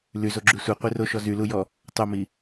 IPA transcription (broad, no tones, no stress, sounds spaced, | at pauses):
l y z o ɡ͡ǁ y sʷ ɛ qʷ i r o ʃ ɔ z y l u j ɔ | tˤ o m i